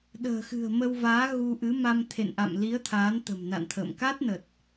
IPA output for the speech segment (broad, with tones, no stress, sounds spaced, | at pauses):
ɗ ə̤ː˨˩ x ɨ̤˨˩ ə̯ m ə˧ w v aː˨˦ ɣ u˧ ʔ ɨ˨˦ m a˧ m t̪ʰ ḛ˧˨ n ʔ a̰˧˨ m l i˨˦ ə̯ t̪ʰ aː˨˦ n t̪ ə̤˨˩ m n a̰˧˨ n t̪ʰ ə̰ː˧˨ m k a˦˥ t̚ n ə˨˩ t̚